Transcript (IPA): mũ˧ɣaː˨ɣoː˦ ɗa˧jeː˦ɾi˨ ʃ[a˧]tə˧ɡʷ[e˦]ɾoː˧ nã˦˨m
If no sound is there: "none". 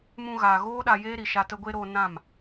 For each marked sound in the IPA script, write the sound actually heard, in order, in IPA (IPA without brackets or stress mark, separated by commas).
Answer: a˧, e˦